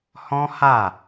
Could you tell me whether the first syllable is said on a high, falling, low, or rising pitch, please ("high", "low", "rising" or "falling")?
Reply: high